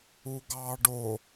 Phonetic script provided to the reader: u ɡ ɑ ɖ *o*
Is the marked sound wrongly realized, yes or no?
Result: no